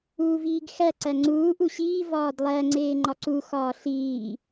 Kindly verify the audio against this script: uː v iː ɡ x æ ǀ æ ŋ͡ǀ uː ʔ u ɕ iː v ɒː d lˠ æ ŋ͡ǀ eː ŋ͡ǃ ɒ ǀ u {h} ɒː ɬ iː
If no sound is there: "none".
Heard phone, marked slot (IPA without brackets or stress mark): x